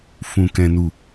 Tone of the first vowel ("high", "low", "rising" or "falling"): high